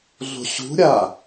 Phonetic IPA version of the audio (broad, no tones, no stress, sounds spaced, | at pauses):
ɮ o̤ ɕ ṳ ɾʲ a